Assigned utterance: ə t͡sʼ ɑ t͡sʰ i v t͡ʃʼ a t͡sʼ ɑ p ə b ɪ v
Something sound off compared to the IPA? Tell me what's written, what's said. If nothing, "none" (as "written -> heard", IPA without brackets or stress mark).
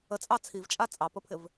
b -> pʰ